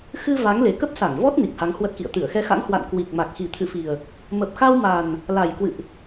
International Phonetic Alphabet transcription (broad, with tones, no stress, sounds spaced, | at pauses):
x ɨ˧ v a˨˦ ŋ l e˨˩ k ə˦˥ p̚ s a˧˩ ŋ v ɔ˦˥ t̚ n i˨˩ k̚ h a˨˦ ŋ h w ə˦˥ t̚ k ḭ˧˨ ə̯ t̪ ɨ˧˩ ə̯ x ɛ˧ x a̰˧˥ ŋ h w a̰˧˨ n k w i˨˩ k̚ m a˨˩ k̚ x i˨˩ t̪ʰ ɨ̰˧˨ f i˨˩ ə̯ | m ə˨˩ p̚ x a˧ w m a˨˩ n | l a˨˩ j k w ɨ̰˧˨ ʔ